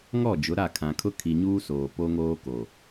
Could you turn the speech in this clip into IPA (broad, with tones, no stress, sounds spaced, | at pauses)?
ŋ ɔ˦˨ d͡ʒ ʊ˨˦ ɾ a˦˨ kʰ ã˨ kʰ ʊ˦ kʰ i˨ ɲ uː˦ s oː˨ p o˦ ŋ oː˦ k o˨